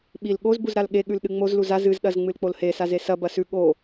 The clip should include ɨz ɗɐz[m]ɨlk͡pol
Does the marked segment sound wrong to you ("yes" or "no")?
yes